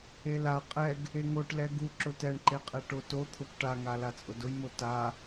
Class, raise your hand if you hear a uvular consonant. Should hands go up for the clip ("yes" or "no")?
yes